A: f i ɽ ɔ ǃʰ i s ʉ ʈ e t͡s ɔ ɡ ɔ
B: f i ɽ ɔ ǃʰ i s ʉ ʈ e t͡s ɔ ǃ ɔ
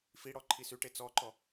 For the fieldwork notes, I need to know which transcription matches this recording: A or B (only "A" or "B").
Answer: B